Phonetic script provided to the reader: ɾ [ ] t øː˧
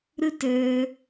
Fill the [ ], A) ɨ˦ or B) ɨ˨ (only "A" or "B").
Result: A